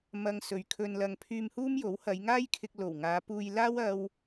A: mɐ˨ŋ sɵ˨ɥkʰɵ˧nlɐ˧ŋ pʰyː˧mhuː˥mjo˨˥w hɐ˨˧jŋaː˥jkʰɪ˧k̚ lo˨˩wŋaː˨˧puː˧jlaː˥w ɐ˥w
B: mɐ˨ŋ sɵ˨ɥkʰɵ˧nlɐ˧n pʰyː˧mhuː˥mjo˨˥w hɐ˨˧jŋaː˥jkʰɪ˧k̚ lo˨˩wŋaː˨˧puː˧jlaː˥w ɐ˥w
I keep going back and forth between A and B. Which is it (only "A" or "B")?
A